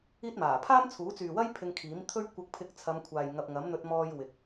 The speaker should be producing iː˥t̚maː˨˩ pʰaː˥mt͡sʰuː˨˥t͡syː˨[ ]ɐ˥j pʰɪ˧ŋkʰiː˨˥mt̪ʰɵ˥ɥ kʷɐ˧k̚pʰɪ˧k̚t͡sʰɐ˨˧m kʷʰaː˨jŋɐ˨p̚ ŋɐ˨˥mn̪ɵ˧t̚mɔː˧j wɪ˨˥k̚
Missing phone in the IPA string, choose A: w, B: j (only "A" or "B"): A